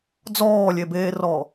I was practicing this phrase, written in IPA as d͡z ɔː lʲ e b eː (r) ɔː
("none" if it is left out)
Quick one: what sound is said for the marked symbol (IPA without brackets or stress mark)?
r